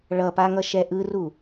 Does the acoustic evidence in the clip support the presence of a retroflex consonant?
yes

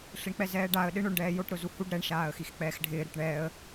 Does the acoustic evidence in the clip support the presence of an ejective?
no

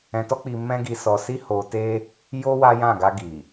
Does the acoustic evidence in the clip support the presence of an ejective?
no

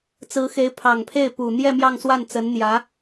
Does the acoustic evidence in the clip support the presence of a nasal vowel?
no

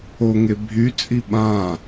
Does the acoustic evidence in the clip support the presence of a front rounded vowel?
yes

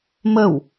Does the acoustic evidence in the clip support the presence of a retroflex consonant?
no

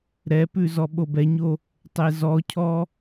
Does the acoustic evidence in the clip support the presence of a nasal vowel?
no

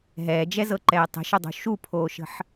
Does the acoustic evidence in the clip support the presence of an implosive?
no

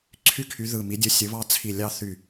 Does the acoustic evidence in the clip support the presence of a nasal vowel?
no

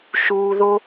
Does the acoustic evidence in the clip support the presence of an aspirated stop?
no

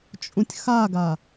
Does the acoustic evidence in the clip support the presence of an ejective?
yes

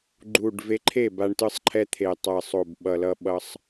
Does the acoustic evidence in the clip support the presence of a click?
yes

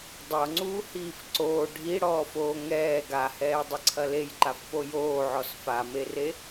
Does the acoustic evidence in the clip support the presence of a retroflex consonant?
yes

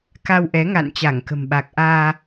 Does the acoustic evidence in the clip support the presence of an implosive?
yes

